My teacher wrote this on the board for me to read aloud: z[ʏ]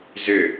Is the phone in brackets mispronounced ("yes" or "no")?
no